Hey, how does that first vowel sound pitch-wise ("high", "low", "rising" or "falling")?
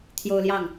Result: high